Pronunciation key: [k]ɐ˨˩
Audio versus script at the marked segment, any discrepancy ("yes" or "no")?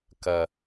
no